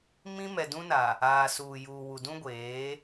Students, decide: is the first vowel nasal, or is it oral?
nasal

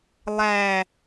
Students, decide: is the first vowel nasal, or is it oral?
oral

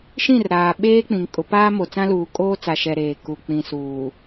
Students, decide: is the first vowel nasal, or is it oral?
nasal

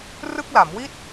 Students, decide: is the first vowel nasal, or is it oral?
oral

